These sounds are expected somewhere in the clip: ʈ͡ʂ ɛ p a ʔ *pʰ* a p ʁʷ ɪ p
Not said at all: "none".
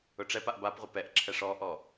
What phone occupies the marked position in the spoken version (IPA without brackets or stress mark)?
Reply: b